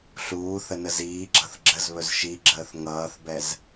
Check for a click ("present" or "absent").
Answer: present